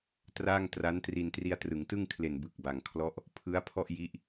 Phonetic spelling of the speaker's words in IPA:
t r aː˥˩ ŋ t r a˦˥ n t r i˧ n t r i˧ a̯ t r ɯ˩˦ ŋ t ɯ˥˩ ŋ kʰ l e˨˩ n b ɯ˨˩ k̚ b a˨˩ ŋ kʰ l ɔ˦˥ ʔ | pʰ ɯ˦˥ a̯ pʰ ɔ˥˩ ʔ j i˦˥ ʔ

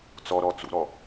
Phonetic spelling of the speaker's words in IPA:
t͡s ɔ ɾ ɔ t͡s ṵ ɾ ɔ

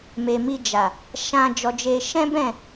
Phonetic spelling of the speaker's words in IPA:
m e˨ m i˧ d͡ʒ a˨ | ʃ ã˧ d͡ʒ ɔ˧ d͡ʒ e˧ ʃ ɛ̃˦ b ɛ̃˦˨

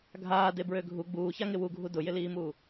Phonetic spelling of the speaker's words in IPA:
ɡʱ aː d e b ɹ ø ɡʱ u ɡ͡b uː ç a ŋ ɪ w u ɡʱ u d ʊ j ɪ l iː m uː

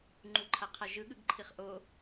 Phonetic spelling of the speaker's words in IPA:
ŋ͡ǃ u ǃʰ a qʰ a ʒ ɯ ɠ ɯ ɡ ǃʰ i χ ʔ o

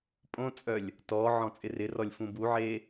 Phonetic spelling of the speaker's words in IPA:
pʼ õ t͡sʼ œ lʲ | t ɔ ʕ ɔ̃ t͡sʼ ɪ r ɪ r ɔ lʲ f ũ b u ʕ e

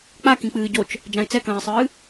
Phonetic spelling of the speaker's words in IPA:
k͡p a k ĩ k͡p ɨː ɟ o t͡ʃ | d͡ʒ ã ɪ̯ t͡s ɛ k ɐ̃ː ɪ̯ sˤ ɨː

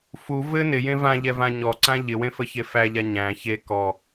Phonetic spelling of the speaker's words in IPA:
f u v ɘ n ɪ j ẽ v ã ʎ ɛ v ã ɲ ɔ ǀ ã ʎ ɪ w ẽ f ə ç e f æ ʎ a ɲ æ̃ ç e k ɔ

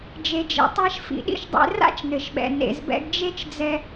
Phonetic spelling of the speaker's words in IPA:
d͡ʒ e˩ d͡ʒ ḛ˩ tˤ a˧ ʃ f ḭ˩ ɗ ḭ˥ ʃ dˤ ḛ˧ r a̰˥ t͡ʃ n ɘ˩ ʃ ɓ ɛ̰˩ n ḛ˩ z b ɛ̰˧ ɡ d͡ʒ e˥ t͡ʃ d͡z ɛ˧

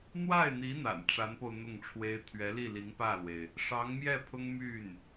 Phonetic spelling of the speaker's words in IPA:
n̪ w a˥˩ ɪ̯ n̪ i˧˥ n̪ a̰˨˩ n ʈ͡ʂ a˧˥ n p o˧ ʊ̯ n̪ ʊ˥˩ ŋ ʈ͡ʂʰ w e˥ ɪ̯ t̪ʰ ɥ ɛ˧˥ l i˥˩ l i˧˥ ŋ p ä˥˩ l w e˩ ɪ̯ | ʂ ɑ˧˥ ŋ m j ɛ˥˩ pʰ ʊ˥ ŋ m y˥˩ n

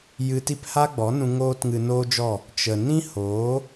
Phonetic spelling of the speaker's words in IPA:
j ɨ˧ t i˦ p h a˦ ɡ͡b ɔ˨˦ n ũ˧ ŋ oː˦ t ŋ ɨ˧ n oː˦ d͡ʒ ɔ˦˨ | t͡ʃ ə˨ n ĩ˦ h oː˨˦

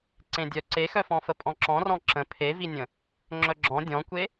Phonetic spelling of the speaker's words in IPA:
ǀ ẽ dʲ œ ǀ e x œ f ɔ̃ f ə pʼ ɔ̃ ǁ ɔ̃ r ɔ̃ ǁ ə̃ pʰ e v i nʲ ə̃ | ŋ͡ǁ œ ɡ͡ǁ ɔ̃ dʲ ɔ̃ kʷ e

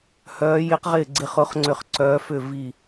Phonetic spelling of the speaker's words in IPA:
h œː˦˥ j ɪ˦˥ q ʁ ɪː˥˧ ɡ͡ǀ ɪ˦˥ χ ʊ˦˥ χ ŋ͡ǀ ʏ˥˧ χ ǀ œː˦˥ f ʏ˥˧ v i˥˧

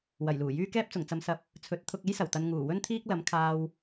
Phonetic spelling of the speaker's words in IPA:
w ɐ˨˩ j l uː˨˩ j yː˥ k ɛː˥ p̚ t͡s ʊ˨˩ ŋ t͡s ɐ˨˧ m s ɐ˨˥ p̚ | t͡sʰ ɵ˨˥ t̚ t̪ʰ ʊ˧ k̚ e˥ j s ɐ˨˩ w t̪ ɐ˨ n ŋ uː˨˩ w ɵ˥ n t̪ʰ iː˥ k̚ l ɐ˨˥ m kʰ aː˧ w

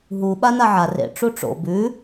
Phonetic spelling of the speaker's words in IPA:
ɦ u ɓ a n a ʕ a r ḛ ʈ͡ʂ u ʈ͡ʂ o̰ b ʉ

